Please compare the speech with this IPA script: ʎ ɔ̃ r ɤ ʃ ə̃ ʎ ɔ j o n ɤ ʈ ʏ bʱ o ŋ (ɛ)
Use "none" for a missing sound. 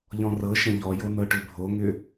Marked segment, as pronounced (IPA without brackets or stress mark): ʏ